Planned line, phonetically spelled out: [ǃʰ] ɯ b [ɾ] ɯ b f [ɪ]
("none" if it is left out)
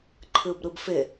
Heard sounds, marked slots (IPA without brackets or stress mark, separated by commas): ǃʰ, ɾ, ɪ